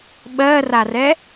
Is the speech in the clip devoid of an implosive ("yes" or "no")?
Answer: no